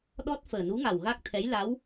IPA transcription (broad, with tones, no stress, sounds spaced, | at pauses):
ɗ ɔ˦˥ t̚ f əː˨˩ n u˧˥ ŋ a˨˩ w ɣ a˦˥ k̚ t̪ʰ ɛ˧˥ j l a˧˥ w